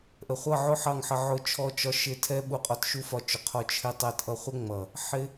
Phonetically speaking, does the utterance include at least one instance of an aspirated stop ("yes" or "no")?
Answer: yes